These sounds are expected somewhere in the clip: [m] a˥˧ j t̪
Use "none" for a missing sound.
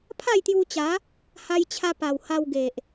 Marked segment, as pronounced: pʰ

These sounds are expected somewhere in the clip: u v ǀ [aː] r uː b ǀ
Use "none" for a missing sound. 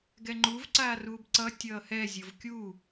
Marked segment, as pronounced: aː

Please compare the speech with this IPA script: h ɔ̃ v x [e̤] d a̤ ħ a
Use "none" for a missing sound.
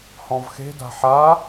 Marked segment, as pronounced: e̤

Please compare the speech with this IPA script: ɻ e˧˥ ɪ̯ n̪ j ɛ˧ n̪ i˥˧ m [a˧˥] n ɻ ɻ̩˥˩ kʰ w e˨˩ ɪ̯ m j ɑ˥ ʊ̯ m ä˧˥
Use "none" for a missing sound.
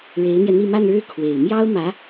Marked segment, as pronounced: a˥˧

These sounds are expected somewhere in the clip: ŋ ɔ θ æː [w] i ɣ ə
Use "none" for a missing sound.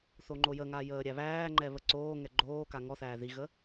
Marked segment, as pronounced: ð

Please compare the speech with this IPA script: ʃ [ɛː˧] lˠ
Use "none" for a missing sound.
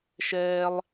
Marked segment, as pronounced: ɛː˧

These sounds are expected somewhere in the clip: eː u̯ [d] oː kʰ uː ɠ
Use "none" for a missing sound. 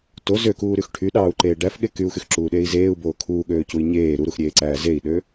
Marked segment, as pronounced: b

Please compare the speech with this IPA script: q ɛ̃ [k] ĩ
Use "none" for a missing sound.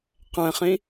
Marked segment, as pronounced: χ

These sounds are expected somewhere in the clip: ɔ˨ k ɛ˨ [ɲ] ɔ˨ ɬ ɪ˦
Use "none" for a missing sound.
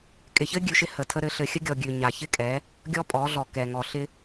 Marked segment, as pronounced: ŋ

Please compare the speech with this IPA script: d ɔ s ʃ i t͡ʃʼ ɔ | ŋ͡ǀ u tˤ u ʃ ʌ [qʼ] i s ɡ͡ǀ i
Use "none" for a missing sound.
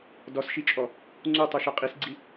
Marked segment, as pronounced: qʼ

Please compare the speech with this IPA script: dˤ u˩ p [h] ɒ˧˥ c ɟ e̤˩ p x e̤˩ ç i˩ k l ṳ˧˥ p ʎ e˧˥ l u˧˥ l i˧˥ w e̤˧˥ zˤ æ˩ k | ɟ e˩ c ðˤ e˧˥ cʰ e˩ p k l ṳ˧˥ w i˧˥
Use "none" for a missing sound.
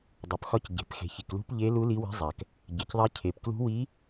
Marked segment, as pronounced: x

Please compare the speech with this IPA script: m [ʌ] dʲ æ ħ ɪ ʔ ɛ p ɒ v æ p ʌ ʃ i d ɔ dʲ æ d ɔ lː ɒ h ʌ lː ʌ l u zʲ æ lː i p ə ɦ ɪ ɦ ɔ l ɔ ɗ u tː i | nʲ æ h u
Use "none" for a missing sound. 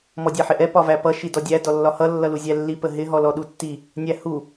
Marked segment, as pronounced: ɔ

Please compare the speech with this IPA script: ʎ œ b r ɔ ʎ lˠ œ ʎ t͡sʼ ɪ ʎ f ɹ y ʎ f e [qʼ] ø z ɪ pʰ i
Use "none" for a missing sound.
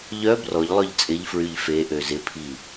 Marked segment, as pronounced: ʔ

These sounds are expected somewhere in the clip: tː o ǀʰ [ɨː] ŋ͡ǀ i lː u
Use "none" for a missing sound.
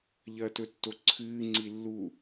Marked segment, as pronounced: ɨː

